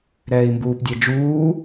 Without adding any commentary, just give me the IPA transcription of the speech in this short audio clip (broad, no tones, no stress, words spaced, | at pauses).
ɾɛːi̯mbuːpdʲɛd͡ʒuː